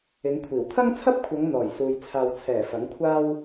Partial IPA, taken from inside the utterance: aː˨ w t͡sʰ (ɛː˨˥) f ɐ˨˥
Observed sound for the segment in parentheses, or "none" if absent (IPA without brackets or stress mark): ɛː˨˩